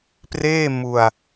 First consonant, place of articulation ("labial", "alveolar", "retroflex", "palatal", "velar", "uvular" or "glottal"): labial